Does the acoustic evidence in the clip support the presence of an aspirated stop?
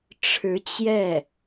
yes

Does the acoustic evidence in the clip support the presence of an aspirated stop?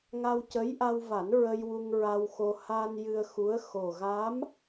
no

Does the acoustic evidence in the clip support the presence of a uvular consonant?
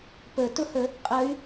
yes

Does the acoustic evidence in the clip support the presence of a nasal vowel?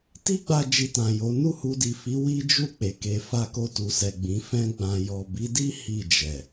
yes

